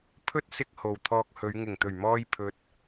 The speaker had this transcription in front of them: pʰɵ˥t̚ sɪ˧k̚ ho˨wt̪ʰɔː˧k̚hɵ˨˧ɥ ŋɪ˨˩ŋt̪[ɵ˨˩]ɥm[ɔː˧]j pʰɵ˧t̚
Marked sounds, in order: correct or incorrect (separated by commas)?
correct, correct